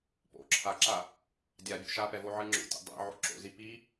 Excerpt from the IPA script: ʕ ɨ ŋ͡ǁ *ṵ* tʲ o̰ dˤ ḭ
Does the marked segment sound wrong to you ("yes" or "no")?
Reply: yes